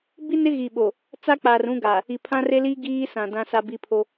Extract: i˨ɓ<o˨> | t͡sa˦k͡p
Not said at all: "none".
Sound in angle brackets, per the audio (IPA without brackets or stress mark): o˨